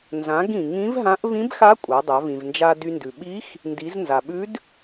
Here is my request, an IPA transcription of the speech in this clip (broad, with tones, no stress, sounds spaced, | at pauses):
n z ã˩˧ ɡ ĩ˩ ŋ ĩ˧˥ v ɦ ã˧˥ ʔ v ĩ˧˥ b x a˧˥ kʷʼ a˩˧ dˤ a˩˧ v ĩ˩ v n d͡ʒ a˧ d y˧ n d ʉ˩ ɓ i˧˥ x | n d i˩˧ z n z a˩ ɓ ʉ˧˥ d